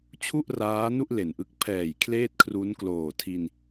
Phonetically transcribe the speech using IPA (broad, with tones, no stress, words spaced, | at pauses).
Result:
t͡ɕʰu˥˩ʔraː˦˥nu˥˩ʔ le˨˩nʔɯ˦˥k̚ pʰɛː˨˩j kʰleː˥˩t̚kʰru˦˥n kloː˨˩tʰi˧n